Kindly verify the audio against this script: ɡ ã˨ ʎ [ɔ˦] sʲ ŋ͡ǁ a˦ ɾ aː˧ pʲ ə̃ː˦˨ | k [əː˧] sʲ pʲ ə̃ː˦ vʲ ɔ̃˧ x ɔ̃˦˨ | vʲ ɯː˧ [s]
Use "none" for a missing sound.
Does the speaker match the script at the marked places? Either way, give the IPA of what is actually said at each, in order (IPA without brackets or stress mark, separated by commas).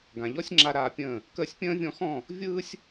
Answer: ɔ˦, əː˧, sʲ